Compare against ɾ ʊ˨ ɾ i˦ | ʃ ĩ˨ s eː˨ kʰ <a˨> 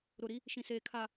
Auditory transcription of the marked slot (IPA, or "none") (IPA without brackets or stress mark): a˨